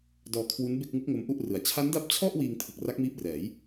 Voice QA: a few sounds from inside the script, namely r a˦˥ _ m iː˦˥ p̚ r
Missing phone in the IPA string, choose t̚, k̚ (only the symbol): k̚